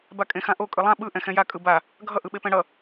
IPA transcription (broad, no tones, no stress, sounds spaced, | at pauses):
b a kʼ ẽ x ã ʔ o kʼ ɯ lˠ ã ɓ ɯ ʔ ɛ̃ x ɛ̃ j a kʼ ɯ b a | ɡʱ ʌ ʔ ɯ ɓ e p ɛ̃ ɽ ʌ